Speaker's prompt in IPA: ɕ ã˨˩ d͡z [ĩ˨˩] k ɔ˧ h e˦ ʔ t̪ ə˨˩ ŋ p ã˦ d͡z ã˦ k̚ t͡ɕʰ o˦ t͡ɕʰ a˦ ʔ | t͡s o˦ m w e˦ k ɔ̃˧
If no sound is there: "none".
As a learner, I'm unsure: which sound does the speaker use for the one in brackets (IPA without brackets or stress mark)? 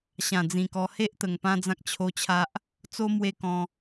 ĩ˨˩